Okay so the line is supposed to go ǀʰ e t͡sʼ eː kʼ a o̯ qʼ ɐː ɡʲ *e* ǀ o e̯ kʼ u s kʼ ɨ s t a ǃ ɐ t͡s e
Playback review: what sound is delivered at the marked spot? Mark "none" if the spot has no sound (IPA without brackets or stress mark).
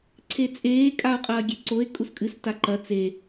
e